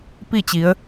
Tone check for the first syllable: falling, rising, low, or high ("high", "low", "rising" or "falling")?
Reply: falling